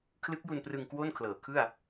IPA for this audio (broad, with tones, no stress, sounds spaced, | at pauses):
kʰ l ɯ˦˥ k̚ j u˧ n p r ɯ˧ ŋ k w o˥˩ n kʰ l ɤː˩˦ kʰ ɯ˥˩ a̯